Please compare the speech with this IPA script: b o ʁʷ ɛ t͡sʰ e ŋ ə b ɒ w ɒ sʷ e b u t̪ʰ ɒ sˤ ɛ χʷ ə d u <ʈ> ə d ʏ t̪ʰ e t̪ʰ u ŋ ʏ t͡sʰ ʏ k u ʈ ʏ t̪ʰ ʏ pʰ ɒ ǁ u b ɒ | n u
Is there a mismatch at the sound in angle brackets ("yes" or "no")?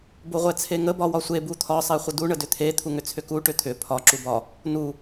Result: yes